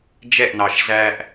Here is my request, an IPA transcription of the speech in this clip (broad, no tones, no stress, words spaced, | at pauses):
d͡ʒɛʔnɑʃ zæʔ